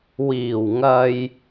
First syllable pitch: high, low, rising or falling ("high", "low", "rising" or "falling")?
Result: low